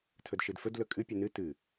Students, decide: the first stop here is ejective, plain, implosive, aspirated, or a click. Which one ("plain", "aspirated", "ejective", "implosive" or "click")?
aspirated